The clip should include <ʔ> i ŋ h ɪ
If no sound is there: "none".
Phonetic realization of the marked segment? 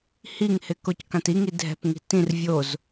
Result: h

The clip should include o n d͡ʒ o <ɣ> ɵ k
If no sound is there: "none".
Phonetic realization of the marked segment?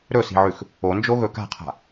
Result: ɣ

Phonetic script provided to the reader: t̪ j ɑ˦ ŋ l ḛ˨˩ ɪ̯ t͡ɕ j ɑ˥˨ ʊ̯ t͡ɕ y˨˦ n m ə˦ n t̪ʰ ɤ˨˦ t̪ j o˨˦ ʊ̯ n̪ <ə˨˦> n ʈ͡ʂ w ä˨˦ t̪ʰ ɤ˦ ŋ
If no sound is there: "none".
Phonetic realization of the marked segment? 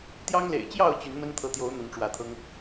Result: ə˨˦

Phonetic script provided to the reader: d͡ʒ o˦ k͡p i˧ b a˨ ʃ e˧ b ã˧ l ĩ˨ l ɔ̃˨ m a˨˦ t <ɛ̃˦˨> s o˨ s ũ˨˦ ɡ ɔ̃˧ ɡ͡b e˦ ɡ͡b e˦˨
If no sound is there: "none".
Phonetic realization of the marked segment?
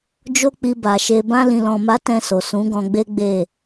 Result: ɛ̃˦˨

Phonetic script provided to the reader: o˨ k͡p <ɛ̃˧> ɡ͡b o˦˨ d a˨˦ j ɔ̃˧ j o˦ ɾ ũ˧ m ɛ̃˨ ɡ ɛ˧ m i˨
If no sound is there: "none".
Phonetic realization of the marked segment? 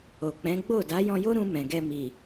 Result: ɛ̃˨˦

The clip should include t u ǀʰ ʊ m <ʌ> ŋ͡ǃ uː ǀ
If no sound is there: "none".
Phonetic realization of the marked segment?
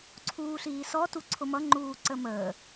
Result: ʌ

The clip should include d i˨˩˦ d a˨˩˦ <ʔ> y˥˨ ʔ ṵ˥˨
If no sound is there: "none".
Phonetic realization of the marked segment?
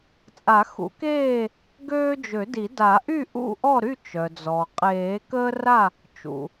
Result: ʔ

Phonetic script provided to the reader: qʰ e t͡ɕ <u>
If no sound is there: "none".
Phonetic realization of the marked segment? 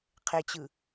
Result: ɯ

